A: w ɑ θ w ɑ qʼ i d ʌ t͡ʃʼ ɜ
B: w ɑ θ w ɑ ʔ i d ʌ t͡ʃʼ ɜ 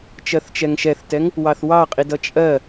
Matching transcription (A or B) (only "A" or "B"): A